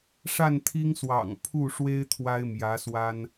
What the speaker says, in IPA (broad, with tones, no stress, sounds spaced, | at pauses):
ʂ a˥˩ n t̪ʰ i˥ ŋ s w ɑ̰˨˩ ŋ pʰ u˥˩ ʂ w e˥ ɪ̯ t̪ʰ w a˥ ɪ̯ m j ä˧˥ s w a˥ n